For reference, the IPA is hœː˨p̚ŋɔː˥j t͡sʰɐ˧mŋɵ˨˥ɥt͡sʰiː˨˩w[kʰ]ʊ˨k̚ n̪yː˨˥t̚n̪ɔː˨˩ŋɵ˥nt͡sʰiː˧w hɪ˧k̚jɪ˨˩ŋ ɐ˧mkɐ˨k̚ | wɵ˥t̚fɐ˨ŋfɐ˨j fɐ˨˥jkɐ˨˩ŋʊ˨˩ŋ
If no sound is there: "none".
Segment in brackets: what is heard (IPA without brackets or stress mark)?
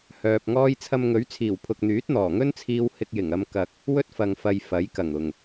pʰ